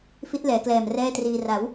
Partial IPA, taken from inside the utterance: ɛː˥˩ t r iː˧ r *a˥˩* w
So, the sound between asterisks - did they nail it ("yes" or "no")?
no